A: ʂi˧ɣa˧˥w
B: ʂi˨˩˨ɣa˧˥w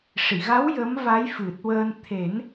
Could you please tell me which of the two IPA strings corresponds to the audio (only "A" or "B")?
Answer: B